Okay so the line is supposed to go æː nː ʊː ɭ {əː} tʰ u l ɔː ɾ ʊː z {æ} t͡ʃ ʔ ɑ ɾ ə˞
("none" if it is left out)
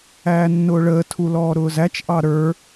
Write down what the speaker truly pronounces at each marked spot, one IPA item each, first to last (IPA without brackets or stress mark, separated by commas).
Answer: əː, æ